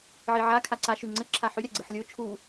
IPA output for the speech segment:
ʕ i ʕ a kʰ a ǀ a ʃ ʉ ŋ͡ǀ ə ǁʰ a ħ ʉ ɾʲ a ɡ͡ǀ ɯ ħ lʲ o t͡ʃʰ u

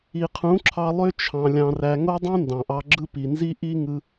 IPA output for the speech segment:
i˨ qʰ ũ˨˦ ǁʰ ɑ˧ lˠ ø˦ t͡ʃʰ ɑ̃˧ lʲ ɑ̃˧ r æ˧ ŋ o˦ dˤ ũ˦ n d ɑ̃˨ ʔ ɑ˧ ɡ͡ǁ ɯ˦ p i˨ n z i˦ ʔ i˦ ŋ ɯ˧

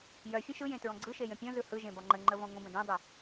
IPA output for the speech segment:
j œ fʲ ə̃ ʃ ɯ j ẽ t ɹ ɔ̃ ɡ͡ǀ ɯ ʃ e j ə̃ pʲ ɔ̃ z ɯ h ɯ ʒ ẽ b ɒ ŋ͡ǃ ə ŋ͡ǃ ə v ɔ̃ ŋʷ ə̃ b ə̃ d ẽ dˤ ɯ

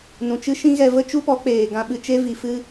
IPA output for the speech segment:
n ũ˨ t͡ʃ ɨ˦ ʃ ĩ˦ ɣ ɛ˧ v ə˦ t͡ʃ u˦ p ɔ˨˦ k͡p eː˨ ɡ ã˧ ɓ ɨ˧ t͡ʃ e˦ v i˨ f ɨ˦

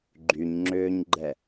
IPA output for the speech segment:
ɡ͡ǃ y ɲ ŋ͡ǁ ʏː ɲ ɡ͡ǃ ɛ

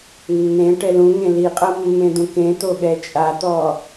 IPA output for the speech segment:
nː ẽ ʈ ɛ l ũ ŋ ẽ l i qʼ ɤ mː ẽ d̪ ũ k ẽ t̪ o ɠ ɛ t͡ʃʼ a t̪ ɔ

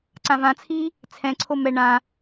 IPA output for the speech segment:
ǀ ã v ã t͡sʰ iː | t͡sʰ ɛ̃ ǀʰ o m ɛ ɳ ã

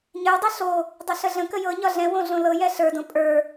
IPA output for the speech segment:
ɲ ə˞ dˤ i ɬ o | dˤ ɛ ɬ ə ɮ ə̃ k ə j ɤ ɲ ɒ ɮ ɛ̃ w õ ɮ õ l ɤ j ɛ ɬ ə˞ d õ pʼ ə˞

